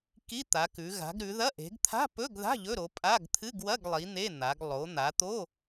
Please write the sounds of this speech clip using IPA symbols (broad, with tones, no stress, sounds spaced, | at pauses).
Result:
k i˧˥˧ t̪ a˩˧ k ʉ˩˧ ɣ a̤˩˧ ɡ ɾ ʉ˩˧ ð ɐ˧˥˧ ʔ e̤˩˧ ɡ t̪ʰ a̤˧˥˧ p ɵ˧˥˧ ɡ ð a̤˧˥˧ ʎ ɵ˧˥˧ ɾ o˩˧ pʼ a˧˥˧ ɡ t̪ʰ ɨ˧˥˧ ɡ w ɐ˧˥˧ ɡ lˠ i˩˧ n̪ e˧˥˧ n̪ a˩˧ ɡ lˠ o˩˧ n̪ a˩˧ t̪ o˧˥˧